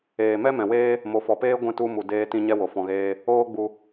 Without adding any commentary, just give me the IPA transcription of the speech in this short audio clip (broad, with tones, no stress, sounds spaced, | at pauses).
eː˨ m ɛ˦ m ɛ̃˨ w eː˦ | m o˨ f ɔ˨ p eː˦ ɡʷ ɛ̃˦˨ t u˧ m u˨ d eː˦ t ĩ˦ ɲ ɛ˦ w o˨ f ɔ̃˧ ɣ eː˦ | oː˦ ɡ͡b u˧